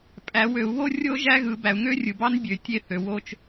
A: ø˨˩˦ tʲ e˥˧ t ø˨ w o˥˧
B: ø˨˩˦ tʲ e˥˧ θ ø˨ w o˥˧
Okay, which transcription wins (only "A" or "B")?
B